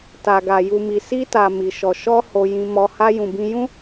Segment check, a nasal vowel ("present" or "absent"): present